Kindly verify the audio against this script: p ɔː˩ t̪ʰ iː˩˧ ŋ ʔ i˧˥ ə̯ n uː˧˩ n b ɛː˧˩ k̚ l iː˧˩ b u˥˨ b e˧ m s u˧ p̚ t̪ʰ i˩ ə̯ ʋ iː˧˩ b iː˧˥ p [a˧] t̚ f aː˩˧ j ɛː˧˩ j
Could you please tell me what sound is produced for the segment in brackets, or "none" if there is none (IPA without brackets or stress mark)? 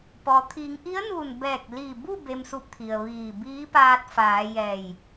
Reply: aː˧